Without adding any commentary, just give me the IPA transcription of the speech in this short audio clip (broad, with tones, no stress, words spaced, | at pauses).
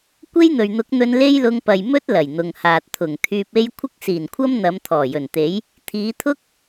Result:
kʷe˥jn̪ɵ˨ɥn̪ʊ˨˥k̚n̪ɵ˧n le˥jlʊ˧ŋpɐ˨j mɵ˥t̚ lɐ˨˩jn̪ʊ˨ŋhaː˨t̚ t̪ʰʊ˨˩ŋ t̪ʰyː˧p̚e˥j kʷʰɪ˥k̚siː˨˩nkʷʰɐ˥m n̪ɐ˨˧m t̪ʰɔː˨˩jɵ˨˩nt̪e˨˥j | t̪ʰiː˨˧t̪ʰʊ˥k̚